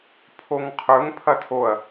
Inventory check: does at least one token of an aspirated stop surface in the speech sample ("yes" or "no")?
yes